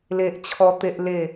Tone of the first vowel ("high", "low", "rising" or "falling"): high